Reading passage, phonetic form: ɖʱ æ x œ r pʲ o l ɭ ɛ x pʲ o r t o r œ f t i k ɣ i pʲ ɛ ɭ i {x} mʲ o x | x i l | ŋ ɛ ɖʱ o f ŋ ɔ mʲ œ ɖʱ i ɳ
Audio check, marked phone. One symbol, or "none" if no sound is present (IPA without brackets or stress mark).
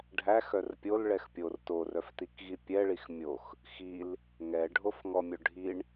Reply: x